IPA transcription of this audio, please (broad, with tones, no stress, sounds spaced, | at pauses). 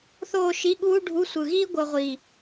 θ oː˥˧ ʃ i˧˥˧ ɠ uː˥ ɖʱ u˧˥˧ sʷ ɯ˨˩ ɣ iː˥ ɡʷ ɤ˧ ʁʷ iː˨˩